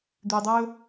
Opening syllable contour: low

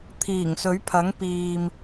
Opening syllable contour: low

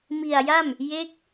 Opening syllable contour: low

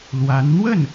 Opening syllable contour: rising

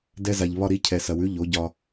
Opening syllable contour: high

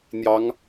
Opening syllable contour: rising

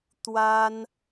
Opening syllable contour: high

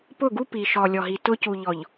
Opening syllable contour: falling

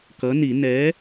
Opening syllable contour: rising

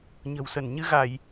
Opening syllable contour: low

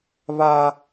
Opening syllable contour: high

